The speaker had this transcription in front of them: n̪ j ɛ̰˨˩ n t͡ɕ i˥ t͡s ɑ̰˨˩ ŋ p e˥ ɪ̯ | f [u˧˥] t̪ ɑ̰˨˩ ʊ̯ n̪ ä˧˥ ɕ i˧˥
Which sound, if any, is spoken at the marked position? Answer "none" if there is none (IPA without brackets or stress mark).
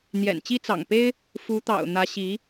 u˧˥